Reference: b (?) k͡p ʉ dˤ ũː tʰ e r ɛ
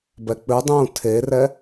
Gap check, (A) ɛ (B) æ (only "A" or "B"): A